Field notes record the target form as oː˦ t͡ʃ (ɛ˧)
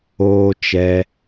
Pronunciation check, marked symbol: correct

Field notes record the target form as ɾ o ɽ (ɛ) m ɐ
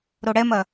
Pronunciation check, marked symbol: correct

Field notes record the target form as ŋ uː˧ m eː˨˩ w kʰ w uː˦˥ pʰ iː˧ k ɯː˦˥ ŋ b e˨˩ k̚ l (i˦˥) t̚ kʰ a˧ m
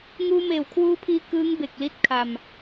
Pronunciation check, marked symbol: correct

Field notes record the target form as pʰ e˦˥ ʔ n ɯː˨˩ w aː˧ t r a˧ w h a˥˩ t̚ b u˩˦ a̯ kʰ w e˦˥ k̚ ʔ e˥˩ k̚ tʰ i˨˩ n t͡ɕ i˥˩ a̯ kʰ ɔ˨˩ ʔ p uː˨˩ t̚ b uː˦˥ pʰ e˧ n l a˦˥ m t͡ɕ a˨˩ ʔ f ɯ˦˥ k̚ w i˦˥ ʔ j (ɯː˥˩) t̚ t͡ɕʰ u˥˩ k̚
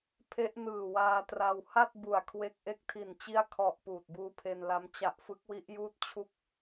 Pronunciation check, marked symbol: incorrect: uː˥˩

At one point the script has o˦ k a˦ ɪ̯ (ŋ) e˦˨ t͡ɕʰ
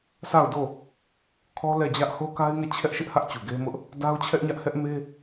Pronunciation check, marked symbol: correct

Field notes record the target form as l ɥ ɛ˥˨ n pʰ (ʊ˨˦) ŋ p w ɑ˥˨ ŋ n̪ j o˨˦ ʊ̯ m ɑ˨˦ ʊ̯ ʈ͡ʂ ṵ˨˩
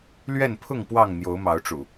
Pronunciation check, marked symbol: incorrect: ʊ˥˨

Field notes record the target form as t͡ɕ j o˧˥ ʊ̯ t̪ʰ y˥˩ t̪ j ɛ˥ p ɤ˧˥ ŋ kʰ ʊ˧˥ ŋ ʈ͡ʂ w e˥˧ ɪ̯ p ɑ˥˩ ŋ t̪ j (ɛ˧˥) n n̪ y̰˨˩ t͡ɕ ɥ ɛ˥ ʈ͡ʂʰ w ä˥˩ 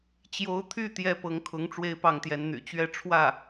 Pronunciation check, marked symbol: correct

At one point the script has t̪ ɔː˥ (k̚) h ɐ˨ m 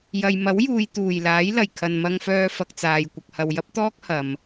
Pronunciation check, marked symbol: correct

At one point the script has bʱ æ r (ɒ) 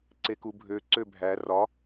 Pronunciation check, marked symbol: correct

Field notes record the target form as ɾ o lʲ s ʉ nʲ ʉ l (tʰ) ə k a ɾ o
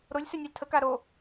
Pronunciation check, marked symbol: correct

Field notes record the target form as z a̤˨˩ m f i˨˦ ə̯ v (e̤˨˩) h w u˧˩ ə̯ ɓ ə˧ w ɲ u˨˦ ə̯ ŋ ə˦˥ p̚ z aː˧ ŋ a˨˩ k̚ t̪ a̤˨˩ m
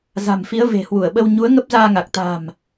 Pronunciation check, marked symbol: correct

